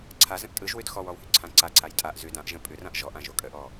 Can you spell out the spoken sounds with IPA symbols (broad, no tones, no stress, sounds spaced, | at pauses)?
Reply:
ǀʰ a z ə̃ ʔ tʼ ɯ ʒ w ʉ d x ɔ w ɔ w h ʉ ǀʰ ã ǀ a ǀʰ a j tʼ a ʔ z ʉ d ã ʔ ʒ ə̃ pʼ ʉ r ã ʔ ʒ ɔ ʔ ã ʒ o kʼ ə ʔ ɔ